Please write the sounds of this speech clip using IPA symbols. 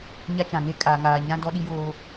ɲ a˦ t͡ʃ ã˨ ŋ e˦ kʼ aː˨ ŋ aː˨ ɲ ã˦ d ɔ˦ ɗ i˦ j oː˦

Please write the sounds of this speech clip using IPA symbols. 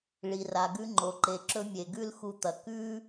ɭ i˩ r a˩ ɡ ʉ˧ ŋ͡ǃ o˩ ǃ e˩ ǁ ɵ˧ mʲ e˩ ɡ ʉ˥ l x u˧ t̪ ɐ˩ k ʉ˥

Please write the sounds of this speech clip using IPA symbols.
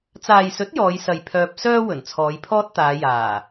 t͡s aː˨ j s ɵ˨˥ t̚ j ɔː˨˧ j s ɐ˨ j pʰ œː˧ p̚ s œː˥ w ɵ˨˩ n t͡sʰ ɔː˨˧ j pʰ ɔː˥ t̚ t̪ aː˨˧ j aː˨˩

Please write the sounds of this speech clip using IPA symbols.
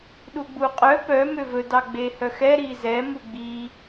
ɗ u ɡ͡b u qʼ œ p œ m ø v ɵ d ɑ ɡ͡b e h œ x ɛ ɾ i z ɛ m u ɡ͡b i

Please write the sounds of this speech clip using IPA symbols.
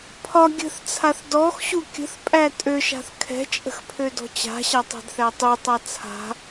pʰ ɒ ɡʲ ə̤ θ t͡sʰ a θ d ɔ x ɕ u kʲ ə̤ θ pʼ æ tʼ ø ʃ a̤ θ kʰ ɛ̤ t͡ʃʼ ə̤ x pʰ ø d ɔ̤ t͡ɕ a̤ ɕ a tˤ ɛ̤ d θ æ tˤ u tˤ a t͡sʰ a̤

